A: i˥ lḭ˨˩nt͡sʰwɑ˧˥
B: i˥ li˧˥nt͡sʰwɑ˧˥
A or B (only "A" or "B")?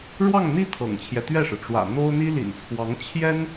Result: A